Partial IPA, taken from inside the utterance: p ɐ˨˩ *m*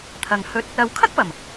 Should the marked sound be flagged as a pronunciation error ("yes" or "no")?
no